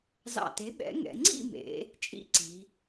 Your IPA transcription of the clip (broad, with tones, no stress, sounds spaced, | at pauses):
z ɑ̰˧˩ t e˨˥ ɓ ɛ̰˨˥ ŋ ɛ̰˩˧ ŋ͡ǀ ḭ˥˧ m ḛ˩˧ | t͡ʃʼ ḭ˥˧ ǀ i˩˧